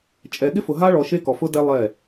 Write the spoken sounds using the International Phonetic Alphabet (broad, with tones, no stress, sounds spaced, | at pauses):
t͡ʃʼ ɛ˨ ɠ ɪ˦ f ʊ˨ ɦ a˦ ɭ ɔ˨ ʃ e˦ k ɔ˨ f ʊ˦ d ɛ˦ lˠ ɛ˦˨